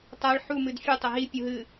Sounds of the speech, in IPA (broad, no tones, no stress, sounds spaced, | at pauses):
tˤ a ɭ ħ u m ɨ d fʲ u tˤ ɐ ɦ i pʲ u ɦ ɨ